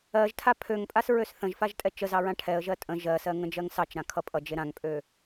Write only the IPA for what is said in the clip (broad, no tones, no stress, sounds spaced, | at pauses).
ɜ ʒ tʰ a pʰ ø ŋ pʼ a s ɹ ø s θ ə̃ ʒ f a ʒ tʼ ɛ t͡ʃ ə z ɑ ɹ ã ʈʰ ɛ ə̯ ʒ ɜ tʼ ə̃ ʒ ɜ s ɜ ŋ ə̃ d͡ʒ ɜ ŋ s ɑ t͡ʃ ɾ ã kʰ ʌ pʼ ʌ d͡ʒ e ɾ ã ŋ pʼ ø